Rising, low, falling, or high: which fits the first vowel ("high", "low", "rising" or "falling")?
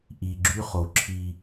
low